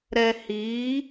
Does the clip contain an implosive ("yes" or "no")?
no